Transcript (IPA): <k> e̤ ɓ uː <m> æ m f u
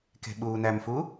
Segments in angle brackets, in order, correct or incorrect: correct, incorrect: n

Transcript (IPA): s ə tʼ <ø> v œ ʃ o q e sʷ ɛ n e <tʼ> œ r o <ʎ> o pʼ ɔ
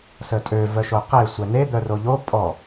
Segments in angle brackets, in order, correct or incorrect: correct, incorrect: d̪, correct

